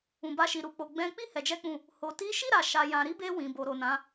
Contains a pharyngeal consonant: no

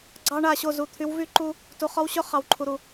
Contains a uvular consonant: yes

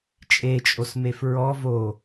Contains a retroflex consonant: no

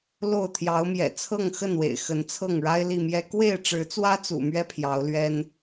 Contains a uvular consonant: no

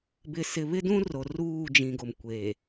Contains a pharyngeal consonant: no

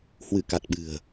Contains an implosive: yes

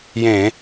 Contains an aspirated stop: no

